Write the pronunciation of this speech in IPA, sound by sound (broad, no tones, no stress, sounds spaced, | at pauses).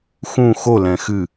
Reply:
x ũ x o l ɛ̃ x ɨ